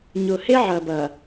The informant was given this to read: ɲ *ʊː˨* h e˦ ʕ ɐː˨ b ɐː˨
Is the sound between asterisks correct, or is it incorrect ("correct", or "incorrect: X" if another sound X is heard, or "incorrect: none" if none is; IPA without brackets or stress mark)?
correct